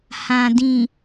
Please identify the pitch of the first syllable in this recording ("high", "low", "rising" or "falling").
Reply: low